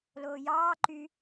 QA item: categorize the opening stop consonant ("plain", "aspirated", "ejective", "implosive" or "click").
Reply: click